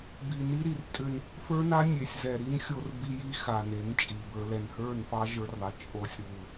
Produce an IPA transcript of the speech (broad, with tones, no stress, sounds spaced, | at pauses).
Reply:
b i˨ n i˦ ɾ i˨ r tʼ ʏ˦ n | f ə˞˦ n a˦ nʲ e˨ sʲ z ɛ˨ ɾ i˦ n xʲ o˦ r b i˦ j i˦ x a˨ n e˨˦ n t͡ʃʼ i˨ b ə˞˦ l ɛ˨ n h ə˞˦˨ n f ɑ˦ ʒ ə˞˦ r ðˤ ɛ˨ t͡ʃʼ o˦ sʲ ɾ u˦˨